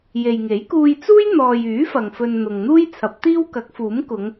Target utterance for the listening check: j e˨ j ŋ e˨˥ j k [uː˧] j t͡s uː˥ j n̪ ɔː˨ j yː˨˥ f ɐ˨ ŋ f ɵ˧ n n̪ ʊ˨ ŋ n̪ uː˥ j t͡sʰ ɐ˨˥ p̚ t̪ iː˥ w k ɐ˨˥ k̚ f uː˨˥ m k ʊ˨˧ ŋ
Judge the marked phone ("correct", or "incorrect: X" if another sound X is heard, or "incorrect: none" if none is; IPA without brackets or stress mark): correct